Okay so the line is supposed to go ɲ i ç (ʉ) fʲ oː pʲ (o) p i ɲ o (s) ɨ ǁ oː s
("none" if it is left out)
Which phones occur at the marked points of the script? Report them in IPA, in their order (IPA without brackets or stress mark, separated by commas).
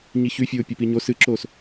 ʉ, o, s